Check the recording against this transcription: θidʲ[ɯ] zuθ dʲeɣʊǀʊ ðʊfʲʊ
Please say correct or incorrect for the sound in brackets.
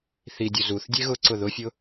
incorrect: u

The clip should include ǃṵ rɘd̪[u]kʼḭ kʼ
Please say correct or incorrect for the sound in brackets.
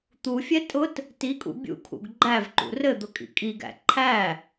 incorrect: ʊ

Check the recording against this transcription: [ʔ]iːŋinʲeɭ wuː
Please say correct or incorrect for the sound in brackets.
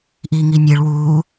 correct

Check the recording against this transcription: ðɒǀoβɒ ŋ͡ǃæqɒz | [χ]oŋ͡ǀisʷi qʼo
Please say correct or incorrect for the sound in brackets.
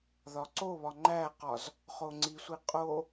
correct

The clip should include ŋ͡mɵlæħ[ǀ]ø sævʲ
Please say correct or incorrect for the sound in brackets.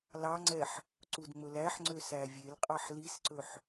incorrect: ŋ͡ǀ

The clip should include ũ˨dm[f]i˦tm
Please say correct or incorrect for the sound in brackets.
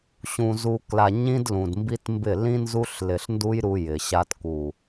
incorrect: b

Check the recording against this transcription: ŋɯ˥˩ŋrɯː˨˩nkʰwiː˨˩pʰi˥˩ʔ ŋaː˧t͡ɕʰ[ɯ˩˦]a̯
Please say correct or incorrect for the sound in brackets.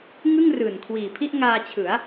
correct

